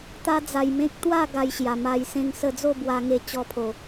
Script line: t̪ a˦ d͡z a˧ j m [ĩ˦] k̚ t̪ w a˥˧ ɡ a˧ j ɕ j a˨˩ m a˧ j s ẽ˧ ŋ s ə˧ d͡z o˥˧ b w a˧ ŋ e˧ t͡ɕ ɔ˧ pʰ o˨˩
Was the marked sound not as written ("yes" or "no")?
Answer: yes